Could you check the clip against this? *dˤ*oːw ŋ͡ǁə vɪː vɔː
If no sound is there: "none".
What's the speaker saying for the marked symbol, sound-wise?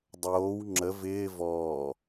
dˤ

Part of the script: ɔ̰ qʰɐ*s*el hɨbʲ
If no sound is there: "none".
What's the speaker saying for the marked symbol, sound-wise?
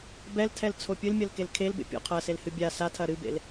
s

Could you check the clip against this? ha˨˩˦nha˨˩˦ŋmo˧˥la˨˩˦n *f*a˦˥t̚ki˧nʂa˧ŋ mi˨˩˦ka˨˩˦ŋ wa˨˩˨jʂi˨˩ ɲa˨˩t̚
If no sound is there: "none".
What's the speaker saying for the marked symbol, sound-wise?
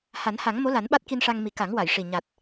ɓ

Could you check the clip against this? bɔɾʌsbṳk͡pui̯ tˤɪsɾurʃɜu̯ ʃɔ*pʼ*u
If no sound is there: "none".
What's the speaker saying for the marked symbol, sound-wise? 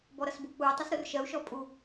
pʼ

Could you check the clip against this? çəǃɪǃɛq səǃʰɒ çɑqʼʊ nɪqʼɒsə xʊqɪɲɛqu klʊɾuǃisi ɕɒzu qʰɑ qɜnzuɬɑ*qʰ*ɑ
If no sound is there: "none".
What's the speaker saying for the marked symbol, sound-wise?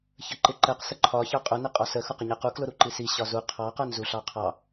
qʰ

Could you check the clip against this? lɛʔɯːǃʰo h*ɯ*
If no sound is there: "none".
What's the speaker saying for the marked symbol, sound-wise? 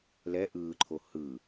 ɯ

